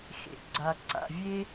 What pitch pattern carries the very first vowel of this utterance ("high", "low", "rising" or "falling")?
low